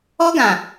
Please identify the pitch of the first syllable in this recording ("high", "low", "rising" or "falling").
high